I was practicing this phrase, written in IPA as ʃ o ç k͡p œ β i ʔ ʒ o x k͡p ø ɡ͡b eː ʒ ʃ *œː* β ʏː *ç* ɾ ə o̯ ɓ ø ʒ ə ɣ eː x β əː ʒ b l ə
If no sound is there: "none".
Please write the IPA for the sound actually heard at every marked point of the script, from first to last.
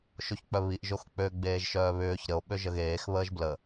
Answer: œː, ç

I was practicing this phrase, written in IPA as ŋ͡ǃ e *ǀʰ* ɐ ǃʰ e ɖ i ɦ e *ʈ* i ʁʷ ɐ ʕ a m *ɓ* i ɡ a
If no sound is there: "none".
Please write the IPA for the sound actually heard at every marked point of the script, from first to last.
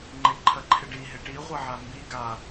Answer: ǃʰ, ʈ, b

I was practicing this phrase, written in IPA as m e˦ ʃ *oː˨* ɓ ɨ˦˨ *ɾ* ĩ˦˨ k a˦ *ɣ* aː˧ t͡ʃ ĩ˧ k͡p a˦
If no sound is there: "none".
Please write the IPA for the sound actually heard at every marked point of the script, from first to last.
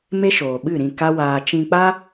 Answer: oː˨, ɾ, w

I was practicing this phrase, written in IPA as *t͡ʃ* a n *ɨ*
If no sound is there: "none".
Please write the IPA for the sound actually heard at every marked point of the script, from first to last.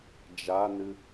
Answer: d͡ʒ, ɨ

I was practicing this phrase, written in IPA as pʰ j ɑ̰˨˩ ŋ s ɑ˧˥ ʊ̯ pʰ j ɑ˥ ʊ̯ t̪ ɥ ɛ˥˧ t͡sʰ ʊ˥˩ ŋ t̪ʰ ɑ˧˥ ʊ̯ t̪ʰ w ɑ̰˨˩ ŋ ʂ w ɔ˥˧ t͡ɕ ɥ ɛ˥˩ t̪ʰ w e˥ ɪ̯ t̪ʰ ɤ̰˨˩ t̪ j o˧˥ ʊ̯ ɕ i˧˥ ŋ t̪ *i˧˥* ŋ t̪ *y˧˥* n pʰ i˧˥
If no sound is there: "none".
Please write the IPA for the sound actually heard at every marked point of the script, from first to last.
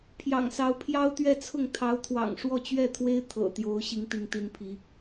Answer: i˧˥, i˧˥

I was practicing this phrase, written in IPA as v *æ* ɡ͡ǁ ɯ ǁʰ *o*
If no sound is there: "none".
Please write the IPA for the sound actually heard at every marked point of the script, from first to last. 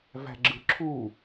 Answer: æ̤, u

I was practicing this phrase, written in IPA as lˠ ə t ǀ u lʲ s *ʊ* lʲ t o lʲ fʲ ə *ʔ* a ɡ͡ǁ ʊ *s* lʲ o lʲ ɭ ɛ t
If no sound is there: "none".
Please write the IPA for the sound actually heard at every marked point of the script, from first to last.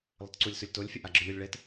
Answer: ʊ, ʔ, none

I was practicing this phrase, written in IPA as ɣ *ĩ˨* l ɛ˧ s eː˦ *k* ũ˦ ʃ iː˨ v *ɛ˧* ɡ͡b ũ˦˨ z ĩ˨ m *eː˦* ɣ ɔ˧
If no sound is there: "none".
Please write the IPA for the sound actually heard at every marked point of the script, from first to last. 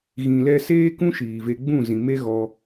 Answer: ĩ˨, k, e˧, e˦

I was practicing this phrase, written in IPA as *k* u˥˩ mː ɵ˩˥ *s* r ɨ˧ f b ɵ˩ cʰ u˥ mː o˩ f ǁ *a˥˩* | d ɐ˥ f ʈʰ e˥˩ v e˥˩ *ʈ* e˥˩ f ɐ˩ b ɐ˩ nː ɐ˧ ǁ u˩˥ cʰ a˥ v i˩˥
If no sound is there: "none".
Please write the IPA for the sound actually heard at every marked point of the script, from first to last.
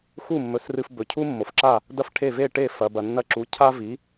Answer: x, s, a˥˩, ʈ

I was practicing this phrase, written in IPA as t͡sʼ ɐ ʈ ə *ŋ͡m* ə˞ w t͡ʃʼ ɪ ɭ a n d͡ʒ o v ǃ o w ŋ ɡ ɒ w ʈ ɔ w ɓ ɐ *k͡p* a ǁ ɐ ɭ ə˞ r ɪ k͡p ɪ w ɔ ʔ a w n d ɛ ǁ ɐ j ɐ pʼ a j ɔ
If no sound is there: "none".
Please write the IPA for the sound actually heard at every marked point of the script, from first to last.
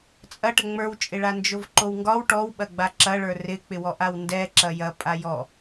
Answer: ŋ͡m, ɡ͡b

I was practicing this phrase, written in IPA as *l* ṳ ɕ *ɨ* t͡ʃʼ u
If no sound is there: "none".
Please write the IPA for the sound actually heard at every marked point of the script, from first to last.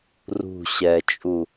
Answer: r, ɛ

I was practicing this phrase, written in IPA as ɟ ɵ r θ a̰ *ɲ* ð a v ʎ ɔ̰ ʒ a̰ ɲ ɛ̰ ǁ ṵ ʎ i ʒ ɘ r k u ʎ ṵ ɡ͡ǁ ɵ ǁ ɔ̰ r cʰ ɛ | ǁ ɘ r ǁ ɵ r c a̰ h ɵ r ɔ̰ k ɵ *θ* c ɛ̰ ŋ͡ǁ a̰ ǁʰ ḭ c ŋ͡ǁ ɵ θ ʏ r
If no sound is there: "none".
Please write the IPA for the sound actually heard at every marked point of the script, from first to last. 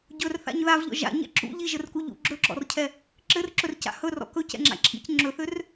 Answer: ɲ, none

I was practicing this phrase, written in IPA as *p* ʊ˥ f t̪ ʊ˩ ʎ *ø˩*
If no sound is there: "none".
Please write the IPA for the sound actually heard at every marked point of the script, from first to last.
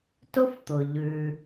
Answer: t, ʉ˩

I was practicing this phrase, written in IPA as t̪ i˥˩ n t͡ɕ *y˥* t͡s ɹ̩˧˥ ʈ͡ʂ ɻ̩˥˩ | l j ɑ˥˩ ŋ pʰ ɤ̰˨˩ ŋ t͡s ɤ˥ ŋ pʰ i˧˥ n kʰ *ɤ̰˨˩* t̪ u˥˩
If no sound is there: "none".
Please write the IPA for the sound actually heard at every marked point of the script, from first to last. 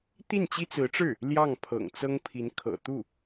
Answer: i˥, ɤ̰˨˩

